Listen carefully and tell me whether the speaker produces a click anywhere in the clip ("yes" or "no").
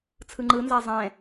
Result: yes